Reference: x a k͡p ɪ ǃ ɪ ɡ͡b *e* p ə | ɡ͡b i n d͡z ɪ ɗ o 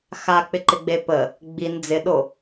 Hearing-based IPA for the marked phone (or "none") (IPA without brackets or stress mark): e